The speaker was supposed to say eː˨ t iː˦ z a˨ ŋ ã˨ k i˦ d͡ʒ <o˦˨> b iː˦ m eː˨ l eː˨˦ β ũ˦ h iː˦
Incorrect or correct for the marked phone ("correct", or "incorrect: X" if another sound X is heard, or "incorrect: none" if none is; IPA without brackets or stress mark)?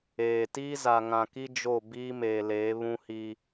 correct